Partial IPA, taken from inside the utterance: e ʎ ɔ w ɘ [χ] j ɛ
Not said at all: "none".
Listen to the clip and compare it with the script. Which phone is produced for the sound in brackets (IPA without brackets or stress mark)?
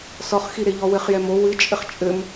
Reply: χ